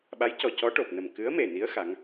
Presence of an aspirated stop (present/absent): absent